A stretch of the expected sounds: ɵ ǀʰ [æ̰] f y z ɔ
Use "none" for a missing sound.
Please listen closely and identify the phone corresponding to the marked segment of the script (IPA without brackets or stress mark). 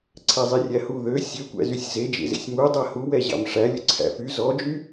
æ̰